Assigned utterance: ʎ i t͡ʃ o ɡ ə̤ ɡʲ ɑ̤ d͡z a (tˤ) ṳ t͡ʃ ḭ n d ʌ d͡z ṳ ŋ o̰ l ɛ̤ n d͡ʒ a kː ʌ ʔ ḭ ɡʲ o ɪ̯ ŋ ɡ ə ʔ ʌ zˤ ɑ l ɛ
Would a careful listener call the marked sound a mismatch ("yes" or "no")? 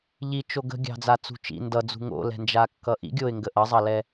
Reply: yes